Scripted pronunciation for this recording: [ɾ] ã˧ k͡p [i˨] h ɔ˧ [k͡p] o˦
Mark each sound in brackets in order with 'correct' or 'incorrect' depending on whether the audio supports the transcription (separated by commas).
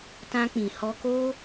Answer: incorrect, incorrect, incorrect